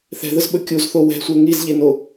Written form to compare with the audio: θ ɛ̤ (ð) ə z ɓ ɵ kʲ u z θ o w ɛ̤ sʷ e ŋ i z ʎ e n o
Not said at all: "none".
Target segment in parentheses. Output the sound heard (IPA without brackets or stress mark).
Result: ð